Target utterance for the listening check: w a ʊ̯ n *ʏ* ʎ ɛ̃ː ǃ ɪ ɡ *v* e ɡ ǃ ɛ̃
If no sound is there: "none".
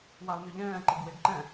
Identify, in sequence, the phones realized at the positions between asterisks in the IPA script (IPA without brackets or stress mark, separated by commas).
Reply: ʏ, w